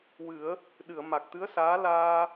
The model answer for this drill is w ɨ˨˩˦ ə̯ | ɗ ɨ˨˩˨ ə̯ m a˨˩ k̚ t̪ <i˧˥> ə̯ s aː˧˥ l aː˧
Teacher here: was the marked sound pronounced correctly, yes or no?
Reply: no